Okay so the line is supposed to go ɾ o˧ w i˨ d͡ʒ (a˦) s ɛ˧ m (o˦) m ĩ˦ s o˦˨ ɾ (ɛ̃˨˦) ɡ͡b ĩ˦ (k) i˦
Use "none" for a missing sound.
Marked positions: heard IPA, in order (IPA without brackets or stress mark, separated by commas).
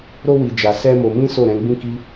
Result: a˨, o˧, ɛ̃˨˦, k